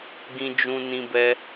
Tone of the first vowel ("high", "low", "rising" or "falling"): high